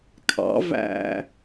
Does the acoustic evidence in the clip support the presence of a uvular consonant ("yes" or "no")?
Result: no